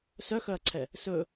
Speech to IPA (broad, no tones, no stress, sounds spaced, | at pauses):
s œ x œ ɐ̯ ǀʰ ɛ | s ɵ